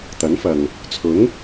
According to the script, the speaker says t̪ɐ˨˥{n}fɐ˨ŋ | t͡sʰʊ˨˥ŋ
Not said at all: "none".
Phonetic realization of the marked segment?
n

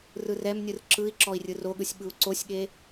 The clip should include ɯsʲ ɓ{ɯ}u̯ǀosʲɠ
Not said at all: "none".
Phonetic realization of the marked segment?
ɯ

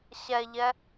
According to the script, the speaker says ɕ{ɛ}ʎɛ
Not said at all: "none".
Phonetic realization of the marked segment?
ɛ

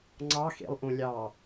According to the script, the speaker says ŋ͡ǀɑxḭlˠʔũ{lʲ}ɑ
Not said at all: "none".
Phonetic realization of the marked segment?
lʲ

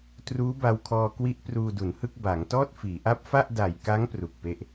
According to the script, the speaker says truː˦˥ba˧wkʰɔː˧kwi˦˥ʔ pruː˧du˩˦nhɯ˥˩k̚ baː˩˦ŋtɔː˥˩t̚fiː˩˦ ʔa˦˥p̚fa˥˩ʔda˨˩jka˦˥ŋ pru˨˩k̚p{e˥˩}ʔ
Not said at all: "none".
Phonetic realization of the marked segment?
e˥˩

